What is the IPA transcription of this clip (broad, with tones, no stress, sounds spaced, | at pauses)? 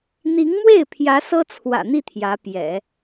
n̪ i˧˥ ŋ m w e˥˩ ɪ̯ pʰ j ä˧˥ s ɤ˥ t͡sʰ w ä̰˨˩ n̪ i˥˩ t̪ʰ j ä˧˥ p j ɛ̰˨˩˦